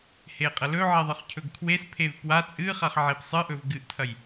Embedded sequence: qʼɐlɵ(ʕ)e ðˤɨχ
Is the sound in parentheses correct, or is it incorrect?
correct